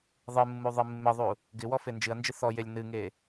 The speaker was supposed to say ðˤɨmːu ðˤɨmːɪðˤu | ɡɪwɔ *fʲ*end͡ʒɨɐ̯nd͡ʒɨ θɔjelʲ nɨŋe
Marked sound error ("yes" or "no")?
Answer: yes